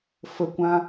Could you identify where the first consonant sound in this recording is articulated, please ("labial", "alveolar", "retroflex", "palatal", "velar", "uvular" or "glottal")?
labial